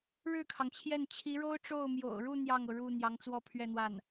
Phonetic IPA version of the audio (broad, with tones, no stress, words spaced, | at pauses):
ɻɻ̩˥˩kʰɑ˩ŋt͡ɕʰjɛ˥˩n t͡ɕʰi˧˥ɻo˥ʊ̯ʈ͡ʂo˥˩ʊ̯ mjo̰˨˩ʊ̯ɻu˥˧ n̪jɑ˥˩ŋɤ˩ɻu˥˩ n̪jɑ˧˥ŋt͡swɔ˥pʰɥɛ˥˧n̪wa˥˩n